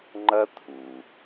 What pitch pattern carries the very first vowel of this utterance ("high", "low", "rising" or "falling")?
high